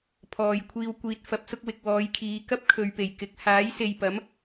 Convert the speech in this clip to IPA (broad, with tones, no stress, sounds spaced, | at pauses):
pʰ ɔː˨ j kʷʰ iː˨ w kʷ iː˨ t̚ f ɐ˨˥ p̚ s ʊ˧ k̚ w ɪ˨ k̚ w ɔː˨˧ j kʰ iː˨˧ k ɐ˥ p̚ kʰ ɵ˨ ɥ p e˨˩ j k ɪ˨ k̚ h aː˨˥ j s e˨ j p ɐ˨˥ m